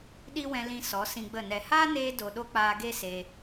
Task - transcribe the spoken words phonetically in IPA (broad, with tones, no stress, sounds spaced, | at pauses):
ɗ i˦ w ɛ̃˧ l ĩ˧ s ɔ˨˦ s ĩ˧ ɡ͡b ə˦˨ n ɛ˨ h aː˦ n eː˧ d o˦ ɗ o˦ k͡p aː˧ ɡ e˦ s e˧